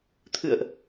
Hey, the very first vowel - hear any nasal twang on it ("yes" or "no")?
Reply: no